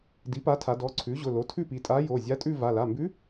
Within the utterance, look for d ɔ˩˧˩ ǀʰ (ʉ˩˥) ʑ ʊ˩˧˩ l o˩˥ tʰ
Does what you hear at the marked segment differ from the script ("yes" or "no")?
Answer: no